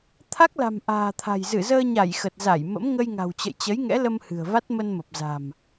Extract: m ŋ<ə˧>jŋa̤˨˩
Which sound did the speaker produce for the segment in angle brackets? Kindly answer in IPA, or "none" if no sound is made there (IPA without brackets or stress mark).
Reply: ə˧